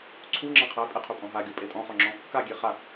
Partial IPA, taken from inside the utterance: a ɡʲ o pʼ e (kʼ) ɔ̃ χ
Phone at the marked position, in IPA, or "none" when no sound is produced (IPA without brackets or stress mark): tʼ